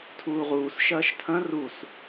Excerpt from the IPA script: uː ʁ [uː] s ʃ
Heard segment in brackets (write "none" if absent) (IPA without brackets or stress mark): uː